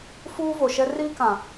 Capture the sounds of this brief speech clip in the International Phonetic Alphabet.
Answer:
f uː˦ v o˨ ʃ ɛ˦ r iː˦ k ã˨

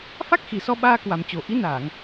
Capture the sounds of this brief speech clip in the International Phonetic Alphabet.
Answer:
f a˦˥ k̚ x i˨˩ s ɔ˧ ɓ aː˧ k w a˨˩ m t͡ɕ o˨˩ ʔ i˨˦ n aː˧˩˨ ŋ

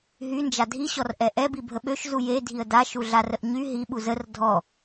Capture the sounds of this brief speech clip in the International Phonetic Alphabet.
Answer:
ɦ y n d͡ʒ a dʱ i ɕ ɔ r ʔ ɛ ʔ ɛ b i bʱ ə ɓ ø ʃ z u j e dʱ i ə̯ d a ʃ u ɮ a r ə ʔ ɲ y ɦ i ɓ u z ə r dʱ ɔ

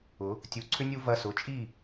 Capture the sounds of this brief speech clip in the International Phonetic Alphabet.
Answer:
ʊ˩˧ | tʲ u˩˧˩ ǀʰ ʏ˦ nʲ u˦ v ɐ˨˥ s ʊ˩˧˩ t͡ʃʼ i˥˩

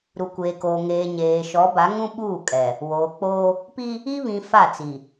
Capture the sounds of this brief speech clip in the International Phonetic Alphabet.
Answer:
ɾ u˨ kʷ eː˨ k oː˨ ŋ eː˨ ɲ eː˨ ʃ ɔ˨˦ b a˨˦ ŋ ũ˦ ɓ uː˦˨ kʼ ɛ˨ | w oː˨ k͡p oː˦ | p i˦ | i˦ β ĩ˨ f a˦˨ t͡s i˨

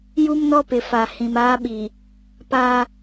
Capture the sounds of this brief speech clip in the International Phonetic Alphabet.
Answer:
j u˦ m n ɔ˦ p ɪ˨ f a˨ h ĩ˨ m aː˦ ɓ i˨ | p aː˦

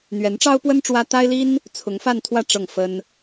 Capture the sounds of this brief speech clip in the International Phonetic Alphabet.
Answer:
n̪ ɥ ɛ˧˥ n ʈ͡ʂ ɑ˥ ʊ̯ p w ə˥ n ʈ͡ʂ w ä˥ t̪ a˥ ɪ̯ l i˥ n | t͡sʰ ʊ˧˥ ŋ f a˥˧ n t̪ʰ w ä˥˧ ʈ͡ʂ ɤ˥˩ ŋ f ə˥ n

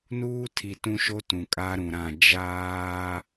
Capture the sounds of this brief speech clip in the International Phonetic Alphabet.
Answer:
n uː˦ tʰ i˨ t ũ˦ ʃ o˦ t ũ˨ kʼ a˦ ɾ ũ˨ ɾ ã˦˨ d͡ʒ aː˦

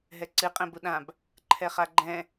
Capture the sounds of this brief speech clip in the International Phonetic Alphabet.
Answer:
ɦ ɛ ǀ ɨ qʼ ɛ̃ b u ɗ ã b | ǃʰ ɛ χ a ɡ͡ǃ ɛ̃

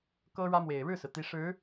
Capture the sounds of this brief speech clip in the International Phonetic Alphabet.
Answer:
k ɤ˥ ɻ ä˥ m w e˨˩ ɪ̯ ɻ ɻ̩˥˩ s ɹ̩˩ t̪ i˧˥ ʂ ɻ̩˧˥

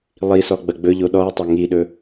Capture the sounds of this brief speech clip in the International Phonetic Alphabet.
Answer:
lˠ i s ɔ ɡ͡b ɐ ɡ͡b ɵ ʎ o ɗ ɔ e̯ tˤ ɵ ŋ i ɗ ɵ

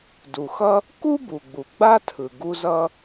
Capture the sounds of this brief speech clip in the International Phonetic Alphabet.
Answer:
d u˩ x ʌ˥ | k u˥ b u˩ ɡ͡b u˩ ɡ͡b a˥ tʰ ɯ˩ ɡ u˥ z ʌ˥

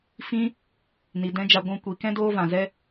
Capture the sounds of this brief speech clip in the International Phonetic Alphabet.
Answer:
f ĩ˦ | n i˨ d ɛ̃˦ d͡ʒ a˧ ɡʷ ũ˧ kʷ i˨ k ɛ̃˦ d oː˦ v ã˨ z ɛ˦

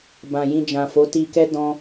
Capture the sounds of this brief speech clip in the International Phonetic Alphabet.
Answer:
b ã˨ j ĩ˧ d͡ʒ ã˨ f o˨˦ t i˧ k ɛ˦ d ɔ̃˧

